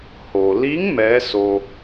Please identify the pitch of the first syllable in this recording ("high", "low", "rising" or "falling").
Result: low